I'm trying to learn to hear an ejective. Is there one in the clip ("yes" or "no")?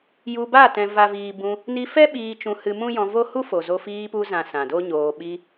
no